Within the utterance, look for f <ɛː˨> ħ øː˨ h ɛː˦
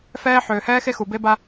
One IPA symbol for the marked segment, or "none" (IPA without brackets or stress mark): ɛː˦